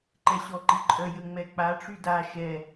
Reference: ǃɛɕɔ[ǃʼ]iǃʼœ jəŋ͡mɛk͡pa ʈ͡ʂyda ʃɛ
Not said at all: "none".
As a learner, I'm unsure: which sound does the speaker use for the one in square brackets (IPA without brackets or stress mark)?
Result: ǃ